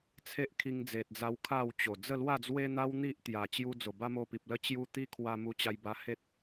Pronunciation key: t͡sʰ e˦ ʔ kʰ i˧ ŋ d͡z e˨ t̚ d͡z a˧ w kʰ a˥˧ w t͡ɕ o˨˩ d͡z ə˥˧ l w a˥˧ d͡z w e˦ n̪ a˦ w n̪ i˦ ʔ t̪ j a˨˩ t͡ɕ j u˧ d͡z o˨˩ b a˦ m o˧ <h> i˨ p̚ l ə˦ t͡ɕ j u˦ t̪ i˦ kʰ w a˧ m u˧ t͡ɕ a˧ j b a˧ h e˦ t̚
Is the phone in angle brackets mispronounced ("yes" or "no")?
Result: yes